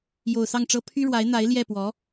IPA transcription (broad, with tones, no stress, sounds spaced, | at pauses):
j o˨˩ ʊ̯ s ɑ˥˩ ŋ ʈ͡ʂ ɤ˥ pʰ y˥ ɻ w a˧˥ ɪ̯ n̪ a˧˥ ɪ̯ l j ɛ˥˩ p w ɔ˧˥